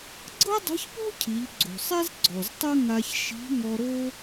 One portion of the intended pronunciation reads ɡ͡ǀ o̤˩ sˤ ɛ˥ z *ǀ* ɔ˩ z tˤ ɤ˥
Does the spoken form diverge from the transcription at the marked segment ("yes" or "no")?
yes